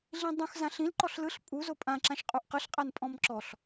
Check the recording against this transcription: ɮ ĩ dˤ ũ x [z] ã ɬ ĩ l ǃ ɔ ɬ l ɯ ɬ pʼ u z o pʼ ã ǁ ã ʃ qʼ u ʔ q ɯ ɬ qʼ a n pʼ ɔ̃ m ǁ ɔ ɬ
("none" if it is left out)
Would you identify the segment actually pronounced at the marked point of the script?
z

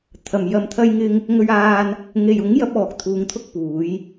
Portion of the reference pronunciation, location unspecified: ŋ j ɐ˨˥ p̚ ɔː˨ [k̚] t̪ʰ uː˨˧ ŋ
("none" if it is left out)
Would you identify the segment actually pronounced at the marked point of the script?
k̚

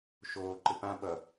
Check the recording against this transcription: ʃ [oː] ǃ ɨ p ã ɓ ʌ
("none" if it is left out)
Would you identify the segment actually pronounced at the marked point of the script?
oː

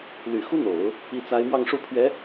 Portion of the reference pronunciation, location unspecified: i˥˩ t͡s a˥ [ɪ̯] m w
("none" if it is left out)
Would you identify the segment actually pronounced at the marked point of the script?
ɪ̯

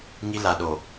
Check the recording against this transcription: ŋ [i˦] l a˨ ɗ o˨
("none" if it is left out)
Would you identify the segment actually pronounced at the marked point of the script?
i˦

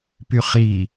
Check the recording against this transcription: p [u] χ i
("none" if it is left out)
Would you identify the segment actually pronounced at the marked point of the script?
y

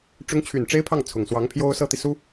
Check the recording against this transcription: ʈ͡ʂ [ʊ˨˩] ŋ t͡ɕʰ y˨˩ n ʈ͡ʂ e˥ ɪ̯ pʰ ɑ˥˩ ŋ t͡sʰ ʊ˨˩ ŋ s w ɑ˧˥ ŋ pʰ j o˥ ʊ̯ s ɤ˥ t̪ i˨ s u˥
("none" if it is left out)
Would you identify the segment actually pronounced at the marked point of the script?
ʊ˧˥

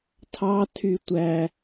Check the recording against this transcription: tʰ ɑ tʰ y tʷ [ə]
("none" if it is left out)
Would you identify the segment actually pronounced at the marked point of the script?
æ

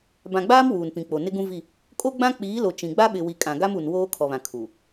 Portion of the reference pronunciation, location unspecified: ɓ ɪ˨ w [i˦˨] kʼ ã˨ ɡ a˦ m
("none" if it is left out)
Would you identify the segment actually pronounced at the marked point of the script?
i˨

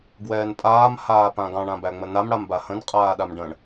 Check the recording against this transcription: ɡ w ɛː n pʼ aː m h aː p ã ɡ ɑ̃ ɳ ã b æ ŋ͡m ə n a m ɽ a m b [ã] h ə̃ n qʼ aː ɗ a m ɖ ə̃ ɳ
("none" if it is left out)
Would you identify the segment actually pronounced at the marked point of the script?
a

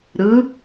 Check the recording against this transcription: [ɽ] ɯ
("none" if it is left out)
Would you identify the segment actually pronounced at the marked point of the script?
ɾ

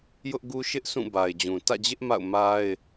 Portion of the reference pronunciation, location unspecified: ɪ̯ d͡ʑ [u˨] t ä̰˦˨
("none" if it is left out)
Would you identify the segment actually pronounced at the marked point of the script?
ũ˨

